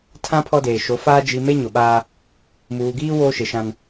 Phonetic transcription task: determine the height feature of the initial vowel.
low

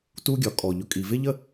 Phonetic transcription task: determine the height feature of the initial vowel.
high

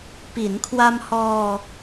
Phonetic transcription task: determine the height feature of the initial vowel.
high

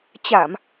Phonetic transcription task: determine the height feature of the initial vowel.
low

